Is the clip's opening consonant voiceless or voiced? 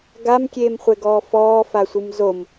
voiced